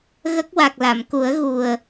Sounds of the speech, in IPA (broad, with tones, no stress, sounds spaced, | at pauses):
ɣ ə˦˥ k̚ w a˨˩ k̚ l a˨˩˨ m k u˨˩˦ ə̯ ɣ u˨˩ ə̯